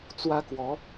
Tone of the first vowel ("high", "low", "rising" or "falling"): high